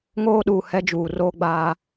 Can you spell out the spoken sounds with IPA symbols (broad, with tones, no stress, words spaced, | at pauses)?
ŋoː˦ɗuː˨ hɛ˦d͡ʒuː˨ roː˦ɡ͡baː˦